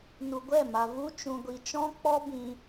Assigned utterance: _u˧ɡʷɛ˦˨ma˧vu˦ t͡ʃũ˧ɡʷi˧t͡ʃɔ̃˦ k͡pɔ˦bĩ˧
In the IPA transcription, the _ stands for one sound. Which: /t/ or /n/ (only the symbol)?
n